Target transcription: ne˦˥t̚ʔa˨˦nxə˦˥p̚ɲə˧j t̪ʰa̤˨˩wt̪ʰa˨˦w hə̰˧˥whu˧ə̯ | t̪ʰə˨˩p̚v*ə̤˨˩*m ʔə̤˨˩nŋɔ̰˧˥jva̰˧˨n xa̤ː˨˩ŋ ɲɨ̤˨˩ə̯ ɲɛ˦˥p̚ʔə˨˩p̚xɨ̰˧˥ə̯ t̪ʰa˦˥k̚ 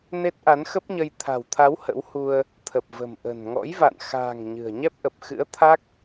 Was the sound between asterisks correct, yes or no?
yes